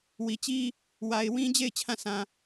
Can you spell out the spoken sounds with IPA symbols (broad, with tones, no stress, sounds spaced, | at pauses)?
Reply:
w i˨ t͡ɕ i˦ | w a˨ ɪ̯ w ĩ˦ d͡ʑ e˦˨ ɪ̯ t͡ɕʰ ã˦˨ s ã˨